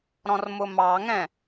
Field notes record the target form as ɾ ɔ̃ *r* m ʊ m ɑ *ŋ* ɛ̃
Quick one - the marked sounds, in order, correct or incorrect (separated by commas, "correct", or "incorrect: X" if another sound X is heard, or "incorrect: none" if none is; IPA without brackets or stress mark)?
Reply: correct, correct